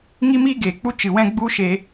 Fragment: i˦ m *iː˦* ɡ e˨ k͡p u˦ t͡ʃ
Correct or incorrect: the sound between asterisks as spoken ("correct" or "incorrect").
correct